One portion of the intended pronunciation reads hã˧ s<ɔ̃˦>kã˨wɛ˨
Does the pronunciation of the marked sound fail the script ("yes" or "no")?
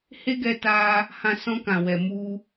no